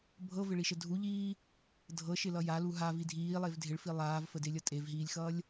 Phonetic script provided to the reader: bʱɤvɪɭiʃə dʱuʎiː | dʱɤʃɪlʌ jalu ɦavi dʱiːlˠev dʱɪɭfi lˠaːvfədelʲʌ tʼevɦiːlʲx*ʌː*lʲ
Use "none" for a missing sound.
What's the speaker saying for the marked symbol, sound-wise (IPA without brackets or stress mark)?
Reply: ʌː